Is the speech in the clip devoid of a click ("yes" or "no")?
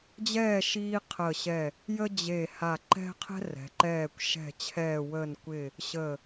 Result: no